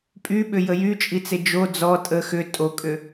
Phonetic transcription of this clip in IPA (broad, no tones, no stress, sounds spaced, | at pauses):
pʼ y ɓ ʏ j ə j y t͡ʃʼ i t͡s e d͡ʒ o d͡z ɔ tʼ ə x ʏ tʼ o kʼ ʏ